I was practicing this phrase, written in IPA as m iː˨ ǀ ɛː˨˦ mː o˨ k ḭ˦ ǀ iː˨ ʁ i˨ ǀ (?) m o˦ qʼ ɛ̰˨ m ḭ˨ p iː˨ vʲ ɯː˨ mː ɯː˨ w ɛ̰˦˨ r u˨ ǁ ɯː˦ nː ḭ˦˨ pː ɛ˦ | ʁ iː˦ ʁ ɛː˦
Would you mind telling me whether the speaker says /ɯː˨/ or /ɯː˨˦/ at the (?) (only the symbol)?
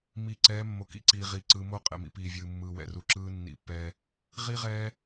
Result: ɯː˨˦